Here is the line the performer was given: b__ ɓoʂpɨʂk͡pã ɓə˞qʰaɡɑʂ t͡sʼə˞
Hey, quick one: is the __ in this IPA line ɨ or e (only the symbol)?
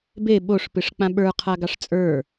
e